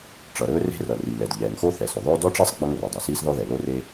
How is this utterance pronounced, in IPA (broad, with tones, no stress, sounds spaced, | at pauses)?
ʈ͡ʂ ʌ˩ ɾ ɵː˥ r e̤˥ r ʌ˩ r i˩ l ɛ˩ d ʎ ɛː˩ ŋ x o˥ θ ɛ˩ s ɵ˩ ðˤ ɵː˥ d ɔ˥ ʈ͡ʂ ɛ˥ sˤ ɡ͡b ʌ˥ ŋ r o˩ dˤ ɛ˩ s iː˥ s ð ɔ˥ ð ɛ˩ l o˥ r e˥